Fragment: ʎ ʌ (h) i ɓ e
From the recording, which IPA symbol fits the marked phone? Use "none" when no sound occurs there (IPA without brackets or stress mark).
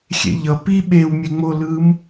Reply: p